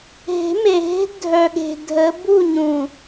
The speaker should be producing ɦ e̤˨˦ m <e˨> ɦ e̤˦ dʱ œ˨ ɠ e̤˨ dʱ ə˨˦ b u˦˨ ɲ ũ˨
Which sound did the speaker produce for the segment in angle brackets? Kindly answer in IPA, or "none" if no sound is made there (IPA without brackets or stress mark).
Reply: e˨